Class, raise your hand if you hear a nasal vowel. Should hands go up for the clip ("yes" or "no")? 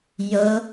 no